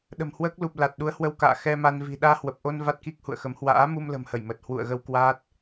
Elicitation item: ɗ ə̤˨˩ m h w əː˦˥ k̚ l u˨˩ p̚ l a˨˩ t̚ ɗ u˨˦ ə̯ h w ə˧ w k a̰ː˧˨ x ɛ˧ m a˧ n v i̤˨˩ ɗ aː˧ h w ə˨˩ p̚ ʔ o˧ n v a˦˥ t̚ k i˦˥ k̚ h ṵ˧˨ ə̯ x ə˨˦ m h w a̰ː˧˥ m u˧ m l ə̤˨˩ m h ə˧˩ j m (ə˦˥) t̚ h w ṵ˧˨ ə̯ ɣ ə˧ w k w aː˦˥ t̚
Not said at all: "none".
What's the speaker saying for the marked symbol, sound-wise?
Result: ə˨˩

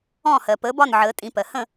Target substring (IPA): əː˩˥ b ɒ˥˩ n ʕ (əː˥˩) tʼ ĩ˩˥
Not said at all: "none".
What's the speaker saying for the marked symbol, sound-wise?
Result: əː˩˥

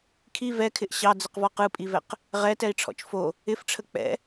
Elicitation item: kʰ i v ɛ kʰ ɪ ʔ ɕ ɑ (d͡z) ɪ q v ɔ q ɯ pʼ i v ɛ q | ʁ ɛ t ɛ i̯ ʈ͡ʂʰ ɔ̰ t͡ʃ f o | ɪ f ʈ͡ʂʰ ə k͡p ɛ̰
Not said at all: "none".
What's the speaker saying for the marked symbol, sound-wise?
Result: d͡z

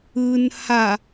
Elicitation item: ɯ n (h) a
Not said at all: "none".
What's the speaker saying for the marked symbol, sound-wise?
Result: h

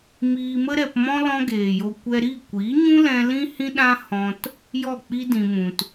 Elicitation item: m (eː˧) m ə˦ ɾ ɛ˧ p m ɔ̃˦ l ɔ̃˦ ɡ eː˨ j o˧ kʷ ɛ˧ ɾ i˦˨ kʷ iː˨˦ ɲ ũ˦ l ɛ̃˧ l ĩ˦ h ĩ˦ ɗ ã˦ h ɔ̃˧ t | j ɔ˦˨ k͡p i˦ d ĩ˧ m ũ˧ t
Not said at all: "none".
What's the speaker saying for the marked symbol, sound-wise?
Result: iː˧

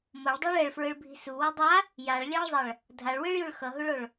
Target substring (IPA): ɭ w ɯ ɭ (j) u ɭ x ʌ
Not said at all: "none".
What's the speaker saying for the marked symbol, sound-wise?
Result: j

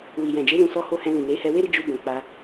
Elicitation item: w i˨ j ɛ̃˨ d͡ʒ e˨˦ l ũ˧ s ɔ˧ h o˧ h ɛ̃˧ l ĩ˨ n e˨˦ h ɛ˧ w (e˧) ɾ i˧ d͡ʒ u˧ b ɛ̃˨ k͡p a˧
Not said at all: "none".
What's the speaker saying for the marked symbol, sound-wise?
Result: e˦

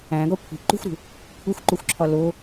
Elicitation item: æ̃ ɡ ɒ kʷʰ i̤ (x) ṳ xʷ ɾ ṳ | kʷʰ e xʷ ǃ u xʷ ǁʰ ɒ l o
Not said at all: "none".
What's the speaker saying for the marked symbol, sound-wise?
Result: ǃ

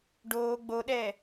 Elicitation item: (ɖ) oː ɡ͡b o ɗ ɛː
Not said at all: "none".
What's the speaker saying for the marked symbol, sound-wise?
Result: ɖ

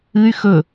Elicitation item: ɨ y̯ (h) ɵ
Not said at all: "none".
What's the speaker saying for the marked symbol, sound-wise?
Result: x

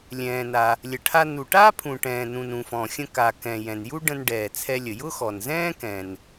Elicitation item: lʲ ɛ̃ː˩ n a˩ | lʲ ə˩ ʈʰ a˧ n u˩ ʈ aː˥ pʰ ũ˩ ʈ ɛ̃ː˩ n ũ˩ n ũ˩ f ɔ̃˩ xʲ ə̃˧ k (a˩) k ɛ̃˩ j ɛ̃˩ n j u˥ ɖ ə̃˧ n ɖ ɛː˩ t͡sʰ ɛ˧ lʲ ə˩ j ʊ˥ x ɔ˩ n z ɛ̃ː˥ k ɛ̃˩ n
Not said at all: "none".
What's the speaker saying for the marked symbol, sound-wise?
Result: a˩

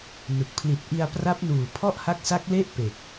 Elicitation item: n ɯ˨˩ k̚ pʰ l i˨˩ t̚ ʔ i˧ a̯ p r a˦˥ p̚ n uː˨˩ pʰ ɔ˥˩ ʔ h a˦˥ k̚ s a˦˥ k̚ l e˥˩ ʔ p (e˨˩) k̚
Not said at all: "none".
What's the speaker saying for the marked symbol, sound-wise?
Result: e˨˩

